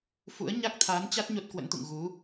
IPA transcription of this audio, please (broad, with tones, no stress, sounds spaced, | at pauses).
f ṵ˧˥ ə̯ ɲ a˦˥ k̚ t̪ʰ aː˨˦ n t͡ɕ a˦˥ t̚ ɲ o˦˥ t̚ k w ə̰˧˥ n t̪ ṵ˧˨ ŋ ɣ u˨˦